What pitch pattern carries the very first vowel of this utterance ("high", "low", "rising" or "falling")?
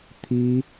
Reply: high